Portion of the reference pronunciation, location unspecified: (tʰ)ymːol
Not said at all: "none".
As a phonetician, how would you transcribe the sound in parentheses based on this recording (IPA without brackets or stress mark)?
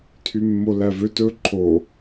tʰ